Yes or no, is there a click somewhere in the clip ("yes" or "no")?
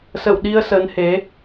no